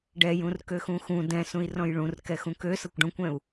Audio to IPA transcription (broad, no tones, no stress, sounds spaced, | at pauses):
ɖ ɛ j ũ r k ø x ũ x ũ d ɛ̃ s ũ i̯ r ɔ̃ j ɭ ũ r k ɛ x ũ k ø s ɤ kʷ ɖ õ kʷ ɛ̃ u̯